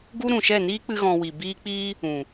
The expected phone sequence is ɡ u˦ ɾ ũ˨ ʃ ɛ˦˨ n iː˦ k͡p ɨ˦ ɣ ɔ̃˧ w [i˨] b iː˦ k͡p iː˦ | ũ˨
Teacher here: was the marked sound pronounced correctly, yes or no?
yes